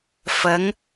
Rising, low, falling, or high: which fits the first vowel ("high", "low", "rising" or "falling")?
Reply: rising